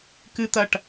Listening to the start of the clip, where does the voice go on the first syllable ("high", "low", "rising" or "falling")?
high